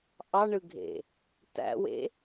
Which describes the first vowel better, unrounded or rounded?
unrounded